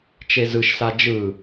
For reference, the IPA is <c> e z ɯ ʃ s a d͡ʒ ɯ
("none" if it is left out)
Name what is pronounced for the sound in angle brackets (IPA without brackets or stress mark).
t͡ʃ